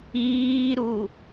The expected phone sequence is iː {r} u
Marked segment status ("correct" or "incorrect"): incorrect